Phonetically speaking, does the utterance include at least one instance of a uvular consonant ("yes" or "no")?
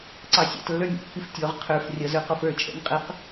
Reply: yes